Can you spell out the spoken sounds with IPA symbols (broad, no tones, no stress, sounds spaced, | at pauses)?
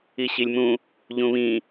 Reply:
i ɕ i lʲ m ũ | ʎ ũ β ĩ